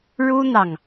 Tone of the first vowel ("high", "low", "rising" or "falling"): high